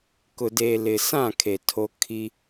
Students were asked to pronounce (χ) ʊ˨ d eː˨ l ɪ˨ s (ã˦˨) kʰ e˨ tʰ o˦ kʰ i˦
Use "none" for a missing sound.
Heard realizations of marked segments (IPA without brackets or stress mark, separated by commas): k, ã˦˨